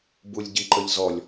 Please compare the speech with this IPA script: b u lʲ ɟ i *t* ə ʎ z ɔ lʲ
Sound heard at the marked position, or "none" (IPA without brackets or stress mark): ǃ